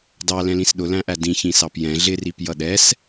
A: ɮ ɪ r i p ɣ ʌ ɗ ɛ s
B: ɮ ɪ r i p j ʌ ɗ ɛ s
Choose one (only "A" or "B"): B